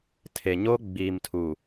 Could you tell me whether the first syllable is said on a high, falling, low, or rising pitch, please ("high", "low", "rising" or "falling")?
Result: low